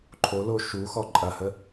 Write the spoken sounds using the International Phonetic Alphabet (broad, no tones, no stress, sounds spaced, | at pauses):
ǃʰ o l o ʃ u x ɔ ǃʼ ɐ h ə